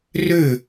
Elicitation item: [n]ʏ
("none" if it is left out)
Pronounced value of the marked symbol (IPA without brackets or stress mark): r